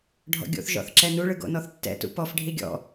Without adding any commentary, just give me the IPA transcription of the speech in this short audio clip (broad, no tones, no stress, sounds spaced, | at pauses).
ɖʱ ɔ̰ ɡʲ o̰ θ ʒ ɔ̰ θ ǁ ɛ n u ɭ ɯ ɡ o̰ n ɔ θ tː ɛ̰ t ṵ p ɔ f ɖʱ i ɡʲ ɔ̰